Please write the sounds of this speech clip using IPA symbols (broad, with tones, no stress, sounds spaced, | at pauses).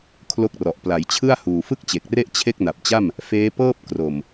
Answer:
kʰ l o˦˥ k̚ r ɔ˨˩ ʔ p l a˩˦ j t͡ɕʰ ɯ˥˩ a̯ h uː˨˩ f ɯ˥˩ k̚ t͡ɕ e˨˩ k̚ r e˥˩ ʔ t͡ɕʰ e˥˩ k̚ n a˨˩ p̚ t͡ɕ a˥˩ m | f eː˦˥ p ɤː˥˩ p̚ k r o˨˩ m